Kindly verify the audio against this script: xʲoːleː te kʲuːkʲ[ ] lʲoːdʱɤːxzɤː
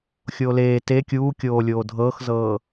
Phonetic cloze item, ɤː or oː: oː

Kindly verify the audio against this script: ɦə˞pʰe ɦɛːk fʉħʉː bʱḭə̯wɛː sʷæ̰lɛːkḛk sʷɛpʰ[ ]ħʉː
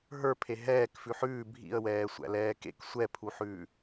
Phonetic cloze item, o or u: u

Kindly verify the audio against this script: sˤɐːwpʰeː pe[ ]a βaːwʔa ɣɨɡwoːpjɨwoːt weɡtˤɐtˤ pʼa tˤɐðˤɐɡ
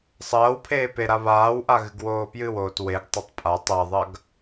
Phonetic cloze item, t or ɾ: ɾ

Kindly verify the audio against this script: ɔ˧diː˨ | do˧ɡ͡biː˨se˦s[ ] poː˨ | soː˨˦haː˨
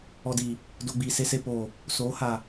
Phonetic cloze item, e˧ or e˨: e˧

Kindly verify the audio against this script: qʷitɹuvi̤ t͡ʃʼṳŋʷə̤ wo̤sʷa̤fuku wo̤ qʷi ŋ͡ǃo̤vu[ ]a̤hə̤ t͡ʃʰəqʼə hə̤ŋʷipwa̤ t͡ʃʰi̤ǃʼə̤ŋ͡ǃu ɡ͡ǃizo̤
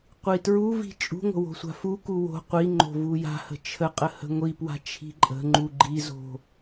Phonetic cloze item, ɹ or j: j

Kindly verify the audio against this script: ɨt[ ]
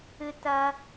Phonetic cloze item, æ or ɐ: ɐ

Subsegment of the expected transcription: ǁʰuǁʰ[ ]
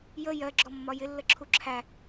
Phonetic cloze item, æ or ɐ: æ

